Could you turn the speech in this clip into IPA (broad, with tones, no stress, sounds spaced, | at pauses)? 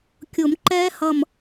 kʲ ʊː˨˩˦ m ǃ ɛː˦˥ h ʌ˧˩ m